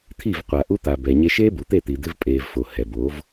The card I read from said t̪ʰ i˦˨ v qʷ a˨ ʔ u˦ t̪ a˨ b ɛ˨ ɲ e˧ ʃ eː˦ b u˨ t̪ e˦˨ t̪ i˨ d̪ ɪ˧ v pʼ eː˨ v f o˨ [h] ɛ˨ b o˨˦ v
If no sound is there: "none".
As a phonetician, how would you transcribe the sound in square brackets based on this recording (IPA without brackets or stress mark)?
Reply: h